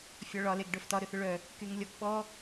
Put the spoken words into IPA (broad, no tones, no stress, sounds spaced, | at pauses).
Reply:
fʲ ɒ ɭ ɒ l e ɡ ɖ œ f t ɒ ɾ ʏ θ ʏ ɭ œ | k y ŋ lʲ ɔ ɡ ɓ ɔ